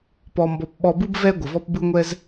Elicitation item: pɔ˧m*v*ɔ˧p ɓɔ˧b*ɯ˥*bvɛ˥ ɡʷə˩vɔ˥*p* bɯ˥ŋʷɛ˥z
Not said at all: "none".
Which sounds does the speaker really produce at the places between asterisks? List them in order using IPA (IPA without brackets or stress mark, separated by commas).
b, ɯ˥, p